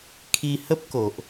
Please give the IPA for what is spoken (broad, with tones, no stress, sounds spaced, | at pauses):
kʰ i˧ h ə˦ p̚ k o˨ ʔ